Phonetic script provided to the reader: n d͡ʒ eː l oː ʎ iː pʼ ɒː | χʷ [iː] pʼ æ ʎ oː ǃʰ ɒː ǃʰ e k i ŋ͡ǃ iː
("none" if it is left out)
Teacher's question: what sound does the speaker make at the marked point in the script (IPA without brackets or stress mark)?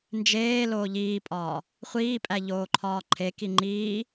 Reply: iː